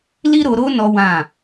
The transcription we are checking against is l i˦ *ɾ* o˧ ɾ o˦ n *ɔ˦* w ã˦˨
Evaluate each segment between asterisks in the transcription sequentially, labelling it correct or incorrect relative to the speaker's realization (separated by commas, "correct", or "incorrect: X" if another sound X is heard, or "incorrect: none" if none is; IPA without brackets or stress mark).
correct, correct